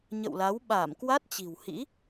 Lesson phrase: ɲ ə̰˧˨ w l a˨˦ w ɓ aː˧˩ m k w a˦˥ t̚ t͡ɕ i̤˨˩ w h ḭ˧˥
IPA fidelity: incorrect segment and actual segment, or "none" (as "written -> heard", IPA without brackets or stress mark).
none